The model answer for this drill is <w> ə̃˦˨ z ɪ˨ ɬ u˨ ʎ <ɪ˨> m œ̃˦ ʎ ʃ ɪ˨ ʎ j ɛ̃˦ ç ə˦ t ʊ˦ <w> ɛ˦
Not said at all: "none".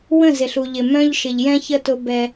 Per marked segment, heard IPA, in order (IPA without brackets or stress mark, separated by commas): w, ɪ˨, b